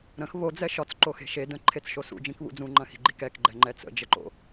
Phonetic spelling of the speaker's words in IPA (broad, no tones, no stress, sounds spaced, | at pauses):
ɾ ə̃ x β o d͡z ɛ ʃ ɒ t͡s ǃ o x e̤ ʃ e d ə̃ ǃʰ e t͡s ʃ o s ṵ d͡ʒ ĩ k β ṵ d͡z ũ ŋ͡ǃ ɐ̃ x i̤ ɡ͡ǃ i k ɛ k ɡ͡ǃ ɛ ŋ͡ǃ ɛ t͡s ə̰ d͡ʒ ə ǃ o̰